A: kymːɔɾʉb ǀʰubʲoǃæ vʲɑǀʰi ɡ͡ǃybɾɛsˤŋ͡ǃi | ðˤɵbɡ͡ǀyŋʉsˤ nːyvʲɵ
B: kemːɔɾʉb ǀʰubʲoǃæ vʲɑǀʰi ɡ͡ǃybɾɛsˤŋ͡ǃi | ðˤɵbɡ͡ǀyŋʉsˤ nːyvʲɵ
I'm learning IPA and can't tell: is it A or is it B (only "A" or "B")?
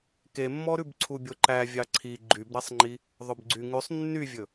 B